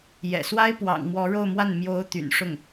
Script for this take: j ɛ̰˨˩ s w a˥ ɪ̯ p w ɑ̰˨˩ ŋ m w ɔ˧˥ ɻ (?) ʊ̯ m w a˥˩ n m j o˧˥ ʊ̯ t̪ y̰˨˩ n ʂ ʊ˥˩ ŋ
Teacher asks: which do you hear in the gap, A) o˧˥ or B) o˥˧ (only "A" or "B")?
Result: B